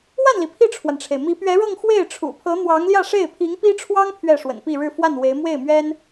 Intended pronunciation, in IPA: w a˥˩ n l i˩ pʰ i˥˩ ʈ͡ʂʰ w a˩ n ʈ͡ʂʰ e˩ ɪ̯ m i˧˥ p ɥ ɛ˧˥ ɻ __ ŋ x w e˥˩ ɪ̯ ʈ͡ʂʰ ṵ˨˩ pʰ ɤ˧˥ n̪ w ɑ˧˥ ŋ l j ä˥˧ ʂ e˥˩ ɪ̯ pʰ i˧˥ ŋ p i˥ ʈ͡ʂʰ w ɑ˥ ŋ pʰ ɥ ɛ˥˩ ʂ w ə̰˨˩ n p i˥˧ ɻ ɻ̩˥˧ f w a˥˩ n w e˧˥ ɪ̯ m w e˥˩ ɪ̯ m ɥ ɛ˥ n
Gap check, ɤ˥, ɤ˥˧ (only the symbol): ɤ˥˧